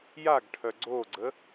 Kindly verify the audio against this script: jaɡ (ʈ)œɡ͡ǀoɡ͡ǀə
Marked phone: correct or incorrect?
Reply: incorrect